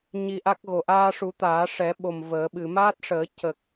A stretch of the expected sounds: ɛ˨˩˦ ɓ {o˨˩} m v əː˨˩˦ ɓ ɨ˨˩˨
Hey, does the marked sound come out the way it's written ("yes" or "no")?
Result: yes